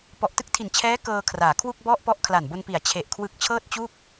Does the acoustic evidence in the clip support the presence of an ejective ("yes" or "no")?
no